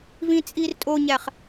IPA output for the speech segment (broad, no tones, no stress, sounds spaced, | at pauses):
v ĩ t͡sʼ i r tʼ o ɲ æ χ